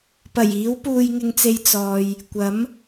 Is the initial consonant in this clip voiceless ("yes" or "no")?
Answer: yes